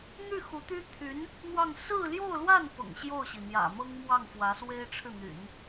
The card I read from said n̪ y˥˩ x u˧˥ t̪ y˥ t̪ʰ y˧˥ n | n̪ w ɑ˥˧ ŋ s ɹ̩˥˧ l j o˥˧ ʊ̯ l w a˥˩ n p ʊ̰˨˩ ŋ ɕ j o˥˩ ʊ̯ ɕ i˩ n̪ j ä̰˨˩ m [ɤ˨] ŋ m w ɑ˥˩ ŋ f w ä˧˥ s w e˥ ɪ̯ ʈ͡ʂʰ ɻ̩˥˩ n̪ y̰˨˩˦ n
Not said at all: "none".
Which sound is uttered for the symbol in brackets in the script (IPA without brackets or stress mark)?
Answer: ɤ˥